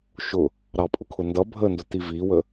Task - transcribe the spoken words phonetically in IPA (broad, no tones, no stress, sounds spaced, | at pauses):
ʃ ʊ | ɾ ɑ pʼ ʊ kʰ ʊ n d ʌ bʱ ə n d ʊ t i v i w ə